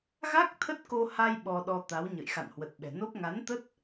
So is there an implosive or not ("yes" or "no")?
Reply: yes